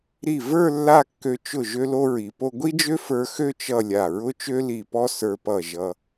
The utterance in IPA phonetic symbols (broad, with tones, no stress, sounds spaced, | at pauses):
ɾ i˧˩ v ə˞˥˧ lː a˥˧ kː ø˧ t͡ʃ ʊ˧˩ ʒ ø˥ l o˥ ɹ i˩˧ p o˥ ɡʷ i˥ d͡ʒ ø˥ f ə˞˧ x ø˥˧ t͡ʃ ʌ˥˧ lʲ a˧˩ ɹ ʊ˥ t͡ʃ ø˥ l i˧˩ p ɔ˥ s ə˞˧ p ʌ˧˩ ʒ ʌ˧